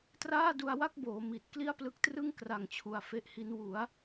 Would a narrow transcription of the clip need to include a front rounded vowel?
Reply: no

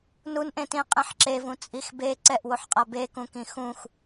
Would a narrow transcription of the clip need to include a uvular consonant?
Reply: yes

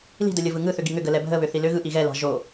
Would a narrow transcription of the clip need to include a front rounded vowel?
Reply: yes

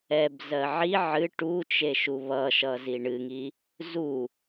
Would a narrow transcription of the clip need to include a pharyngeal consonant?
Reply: yes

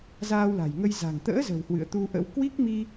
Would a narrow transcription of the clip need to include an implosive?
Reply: no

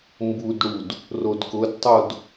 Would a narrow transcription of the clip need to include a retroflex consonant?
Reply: yes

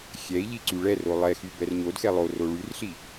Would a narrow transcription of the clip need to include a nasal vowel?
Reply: no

